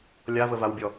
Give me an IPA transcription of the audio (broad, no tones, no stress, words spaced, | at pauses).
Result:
lʲavəvawbʲɔ